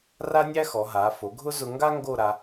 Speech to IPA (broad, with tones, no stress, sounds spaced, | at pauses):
r a˥ nʲ æ˥ x ɔ˩˧ ɦ aː˩˧ f o˩˧ ɡʱ ʊ˥ z ʊ˧ ŋ ɡ a˥ ŋ ɡ o˥˧ ɾ a˧